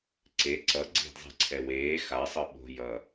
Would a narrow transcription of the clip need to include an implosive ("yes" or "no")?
yes